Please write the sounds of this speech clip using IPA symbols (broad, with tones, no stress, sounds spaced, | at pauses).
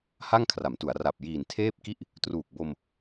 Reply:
h a˥˩ ŋ kʰ r a˩˦ m t u˩˦ a̯ r a˨˩ p̚ j iː˨˩ n tʰ eː˥˩ p̚ k i˦˥ ʔ | t r uː˨˩ k̚ b o˧ m